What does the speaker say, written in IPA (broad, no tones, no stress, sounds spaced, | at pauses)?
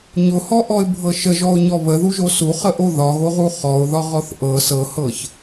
ɲ ʊ h ɔ ʔ ɔ ɪ̯ bʱ ɤ ʃ ə ʒ ɔ ʊ̯ ɲ ɔ β ə ð u ʒ o s u χ ə ʔ o ð ɒ ɣ o ʁ u χ ɔ ʊ̯ ð ɒ ʁ ɔ θ ʔ ɤ s ɤ h ɤ ç